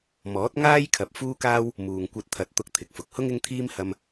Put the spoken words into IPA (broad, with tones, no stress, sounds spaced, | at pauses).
m ɔː˨˥ t̚ ŋ aː˥ j kʰ ɐ˨ p̚ f uː˥ k aː˥ w | m uː˨ ŋ kʷ ɐ˧ t̚ t̪ʰ ɐ˨˥ t̚ t̪ ʊ˧ k̚ t̪ʰ ɪ˨ k̚ f ʊ˨ k̚ h ʊ˥ ŋ ɪ˥ ŋ t̪ʰ iː˥ m h ɐ˧ m